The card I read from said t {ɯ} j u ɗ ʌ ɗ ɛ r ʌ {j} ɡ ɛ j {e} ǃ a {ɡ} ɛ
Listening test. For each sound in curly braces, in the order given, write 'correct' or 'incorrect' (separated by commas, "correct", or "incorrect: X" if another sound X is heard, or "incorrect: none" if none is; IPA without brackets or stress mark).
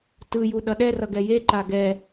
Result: correct, incorrect: none, correct, correct